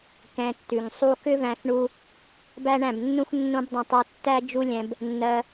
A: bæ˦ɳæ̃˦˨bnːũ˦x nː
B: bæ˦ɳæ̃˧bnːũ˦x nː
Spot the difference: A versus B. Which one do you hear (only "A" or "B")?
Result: A